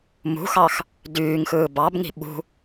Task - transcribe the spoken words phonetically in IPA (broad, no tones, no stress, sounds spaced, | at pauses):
m ṳ x ɑ x | d yː ŋ x ɯː b ɑ b ŋ i̤ ɓ ṳ